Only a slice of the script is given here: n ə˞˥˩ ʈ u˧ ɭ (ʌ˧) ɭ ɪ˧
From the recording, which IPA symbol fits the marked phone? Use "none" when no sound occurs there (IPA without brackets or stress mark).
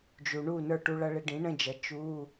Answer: ʌ˧